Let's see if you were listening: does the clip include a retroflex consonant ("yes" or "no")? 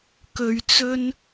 no